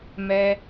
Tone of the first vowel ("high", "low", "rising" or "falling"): high